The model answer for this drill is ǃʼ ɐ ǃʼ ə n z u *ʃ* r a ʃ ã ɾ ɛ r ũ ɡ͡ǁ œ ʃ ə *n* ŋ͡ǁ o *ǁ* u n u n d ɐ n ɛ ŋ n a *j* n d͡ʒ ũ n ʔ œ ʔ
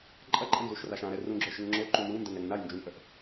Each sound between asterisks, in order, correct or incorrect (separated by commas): correct, incorrect, incorrect, correct